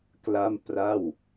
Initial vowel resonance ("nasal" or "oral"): oral